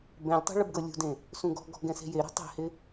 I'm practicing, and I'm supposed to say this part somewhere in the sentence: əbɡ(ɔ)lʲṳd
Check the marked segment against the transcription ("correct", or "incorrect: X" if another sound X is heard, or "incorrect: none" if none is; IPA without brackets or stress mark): incorrect: ɤ